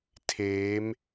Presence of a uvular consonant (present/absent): absent